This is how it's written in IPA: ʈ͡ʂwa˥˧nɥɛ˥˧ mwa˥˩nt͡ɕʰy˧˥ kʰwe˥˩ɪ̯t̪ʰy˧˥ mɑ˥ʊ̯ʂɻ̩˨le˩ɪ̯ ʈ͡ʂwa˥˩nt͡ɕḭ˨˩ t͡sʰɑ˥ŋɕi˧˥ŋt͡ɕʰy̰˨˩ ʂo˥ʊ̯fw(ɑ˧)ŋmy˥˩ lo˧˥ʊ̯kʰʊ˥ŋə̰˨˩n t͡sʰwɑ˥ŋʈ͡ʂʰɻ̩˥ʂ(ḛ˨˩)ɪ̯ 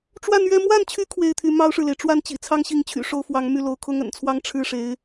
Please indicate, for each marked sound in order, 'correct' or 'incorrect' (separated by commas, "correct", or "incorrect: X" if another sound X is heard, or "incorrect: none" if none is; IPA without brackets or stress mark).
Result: incorrect: ɑ˧˥, incorrect: e˧˥